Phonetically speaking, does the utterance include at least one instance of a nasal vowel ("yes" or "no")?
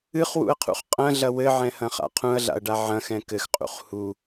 yes